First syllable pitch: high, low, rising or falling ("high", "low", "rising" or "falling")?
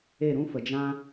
falling